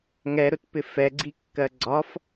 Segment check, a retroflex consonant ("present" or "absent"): absent